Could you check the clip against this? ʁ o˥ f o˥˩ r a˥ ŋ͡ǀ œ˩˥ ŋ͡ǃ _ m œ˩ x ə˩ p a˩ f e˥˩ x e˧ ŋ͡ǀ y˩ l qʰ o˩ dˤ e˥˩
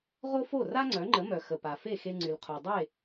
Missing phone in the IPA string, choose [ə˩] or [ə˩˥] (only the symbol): ə˩˥